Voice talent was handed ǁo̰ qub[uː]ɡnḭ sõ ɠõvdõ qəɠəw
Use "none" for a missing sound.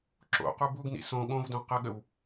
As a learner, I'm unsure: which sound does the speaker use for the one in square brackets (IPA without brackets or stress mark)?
u